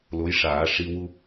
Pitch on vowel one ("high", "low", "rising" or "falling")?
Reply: rising